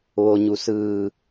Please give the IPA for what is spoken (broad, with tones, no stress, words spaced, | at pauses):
ʋo˩ɲu˩ sɯː˧˩